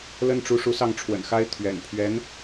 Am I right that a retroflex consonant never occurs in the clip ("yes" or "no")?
no